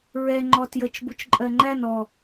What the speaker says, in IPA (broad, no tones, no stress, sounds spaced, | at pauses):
ɹ ɛ ŋ͡ǃ ɔ t j ə t͡ʃ b u t͡ʃ ǃʼ ɜ ŋ͡ǃ æ n ɔ